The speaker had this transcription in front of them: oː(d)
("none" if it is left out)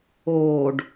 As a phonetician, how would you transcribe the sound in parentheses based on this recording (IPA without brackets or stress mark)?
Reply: ɖ